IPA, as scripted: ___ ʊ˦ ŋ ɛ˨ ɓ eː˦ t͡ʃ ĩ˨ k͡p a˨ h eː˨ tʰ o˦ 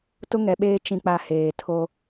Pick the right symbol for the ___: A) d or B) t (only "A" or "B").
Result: B